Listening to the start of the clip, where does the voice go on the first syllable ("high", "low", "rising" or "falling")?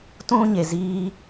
high